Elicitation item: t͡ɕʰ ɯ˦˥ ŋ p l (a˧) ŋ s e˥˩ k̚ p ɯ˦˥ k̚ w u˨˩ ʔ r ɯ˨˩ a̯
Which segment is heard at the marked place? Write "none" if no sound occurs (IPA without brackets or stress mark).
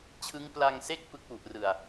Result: a˧